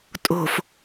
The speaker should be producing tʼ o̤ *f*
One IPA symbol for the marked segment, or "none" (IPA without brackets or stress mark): f